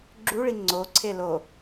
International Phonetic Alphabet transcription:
ɡ͡ǁuɭi ŋ͡ǀoǀʰe lo

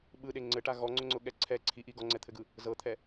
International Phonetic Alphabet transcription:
ɓɯɗe ŋ͡ǀɘʈa ɣɔŋ͡ǀʊŋ͡ǀʊɠɛ ǀʰɛ ǀʰiʔi ɡɔŋ͡ǀɛt̪ʰɘɡɯ | zɤt̪ʰɛ

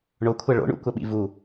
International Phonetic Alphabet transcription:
ɳokʷʰɐ ɭo̰ɳṵkʷɐɓḭ vu

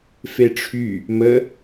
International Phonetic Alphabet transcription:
feʈ͡ʂʰy | mə

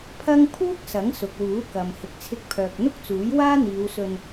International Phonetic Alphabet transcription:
pʰɐ˥ŋ pʰuː˥k̚ sɐ˨˥ŋsʊ˨k̚wuː˨˥kɐ˨m hɪ˨k̚t͡sʰɪ˧k̚pʰœː˨k̚n̪ʊ˥k̚ t͡suː˨˥jwaː˥n̪iː˨˧wsɵ˧n

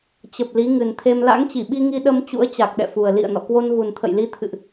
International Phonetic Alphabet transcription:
t͡ɕə˨˩p̚ li˨˦ŋɨ˨˩nt̪ʰe˧m la̰˧˥ŋt͡ɕi˧˩ɓi˧ŋi˧ ɗə˧m t͡ɕṵ˧˥ə̯t͡ɕa˨˩k̚ɗɛ̰˧˨fu˨˩ə̯ lḭ˧˨ə̯nɔ̰˧˨kwo˧nɣu˨˩n t̪ʰə̰˧˨jli˨˦ t̪ʰɨ̰˧˨ʔ

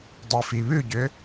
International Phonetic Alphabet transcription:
dˤifiβʉɟʏ

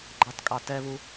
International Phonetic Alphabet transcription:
ɡ͡ǃɑtkʼɑ tɛβu

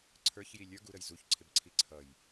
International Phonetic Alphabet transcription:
ǀʰə˞çji lʲə˞ ɡuɾəj zuçǀʰɪb ǀʰiǀʰʌj

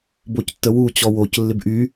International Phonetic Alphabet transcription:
boctːəwu t͡ɕɔwoc lːɪbʔy

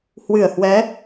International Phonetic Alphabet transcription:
hwɨ˧˩ə̯hwɛ˨˦

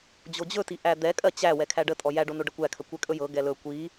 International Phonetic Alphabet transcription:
d͡ʑod͡ʑɵti ʔæd̪ɛkʼɜ t͡ɕæ wɛkʰæɖətʼɔ jæɖo noɖəkʷækʰə kʷɛkʼɵjɤ ɡɛlɵ kʷi

